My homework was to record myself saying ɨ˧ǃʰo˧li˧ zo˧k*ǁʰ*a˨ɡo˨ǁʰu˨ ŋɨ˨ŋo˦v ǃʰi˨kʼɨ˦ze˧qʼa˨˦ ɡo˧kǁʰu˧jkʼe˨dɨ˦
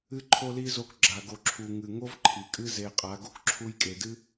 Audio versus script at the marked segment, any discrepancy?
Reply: yes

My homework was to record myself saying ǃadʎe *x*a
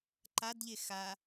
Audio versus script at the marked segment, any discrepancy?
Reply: no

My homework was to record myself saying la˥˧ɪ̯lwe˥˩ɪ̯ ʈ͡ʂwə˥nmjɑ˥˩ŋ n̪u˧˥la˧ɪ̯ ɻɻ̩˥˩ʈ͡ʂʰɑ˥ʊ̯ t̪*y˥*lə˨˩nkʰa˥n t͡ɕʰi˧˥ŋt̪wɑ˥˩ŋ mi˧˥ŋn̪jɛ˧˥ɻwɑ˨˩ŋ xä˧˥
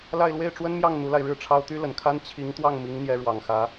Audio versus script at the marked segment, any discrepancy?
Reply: no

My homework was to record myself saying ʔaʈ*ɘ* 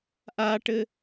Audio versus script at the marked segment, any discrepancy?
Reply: no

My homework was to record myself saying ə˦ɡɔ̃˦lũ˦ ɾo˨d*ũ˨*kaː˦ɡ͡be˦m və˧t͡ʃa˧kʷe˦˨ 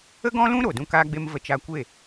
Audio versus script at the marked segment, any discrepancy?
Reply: yes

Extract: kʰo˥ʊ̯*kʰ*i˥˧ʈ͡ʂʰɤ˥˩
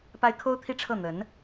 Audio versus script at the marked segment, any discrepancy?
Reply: yes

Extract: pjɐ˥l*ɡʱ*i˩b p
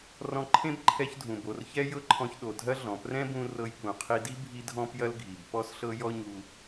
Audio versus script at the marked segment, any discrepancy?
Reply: no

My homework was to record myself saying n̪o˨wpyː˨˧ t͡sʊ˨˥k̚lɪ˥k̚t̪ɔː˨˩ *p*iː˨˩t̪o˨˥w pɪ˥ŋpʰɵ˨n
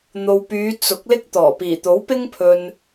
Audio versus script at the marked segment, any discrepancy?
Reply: no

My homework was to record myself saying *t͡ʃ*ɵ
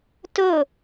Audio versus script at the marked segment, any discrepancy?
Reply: yes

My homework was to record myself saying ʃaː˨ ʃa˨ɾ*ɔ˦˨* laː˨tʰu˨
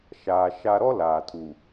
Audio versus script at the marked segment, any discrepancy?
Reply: yes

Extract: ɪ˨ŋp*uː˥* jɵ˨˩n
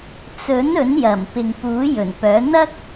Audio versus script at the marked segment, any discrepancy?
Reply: yes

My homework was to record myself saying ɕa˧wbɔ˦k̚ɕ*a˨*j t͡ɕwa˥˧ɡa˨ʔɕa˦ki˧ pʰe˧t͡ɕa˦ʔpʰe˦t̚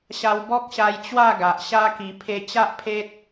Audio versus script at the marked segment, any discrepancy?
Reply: yes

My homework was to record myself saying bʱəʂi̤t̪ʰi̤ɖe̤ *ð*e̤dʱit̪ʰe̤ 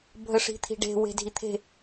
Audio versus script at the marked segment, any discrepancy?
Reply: yes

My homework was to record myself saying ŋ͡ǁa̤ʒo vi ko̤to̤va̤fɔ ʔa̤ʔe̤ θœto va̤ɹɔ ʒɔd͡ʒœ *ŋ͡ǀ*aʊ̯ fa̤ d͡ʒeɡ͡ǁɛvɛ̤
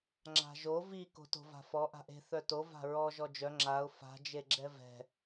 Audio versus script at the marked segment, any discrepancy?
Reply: yes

